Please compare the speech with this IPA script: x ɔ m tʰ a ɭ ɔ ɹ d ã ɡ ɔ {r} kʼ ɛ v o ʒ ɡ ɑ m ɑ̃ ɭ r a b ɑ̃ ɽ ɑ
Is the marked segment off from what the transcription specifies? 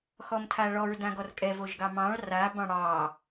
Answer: no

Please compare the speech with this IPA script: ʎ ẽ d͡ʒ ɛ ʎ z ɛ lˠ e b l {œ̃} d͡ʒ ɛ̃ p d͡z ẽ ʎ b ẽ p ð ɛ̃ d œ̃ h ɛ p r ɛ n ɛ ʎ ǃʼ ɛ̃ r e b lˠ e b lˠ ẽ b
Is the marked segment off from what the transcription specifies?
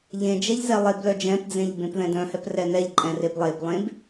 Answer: yes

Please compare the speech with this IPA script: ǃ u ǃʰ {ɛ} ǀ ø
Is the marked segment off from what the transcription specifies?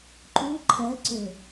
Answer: no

